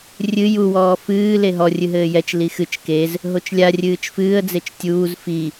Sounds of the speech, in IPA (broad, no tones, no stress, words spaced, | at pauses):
rʲɨ ju wɔːfɨː leɦɔ rʲɨɦɘːjɛt͡ʃ lixɨt͡ʃ kez | ɦot͡ʃlʲa rʲɨːt͡ʃfɨːə̯ d͡zet͡ʃtʲuːz fi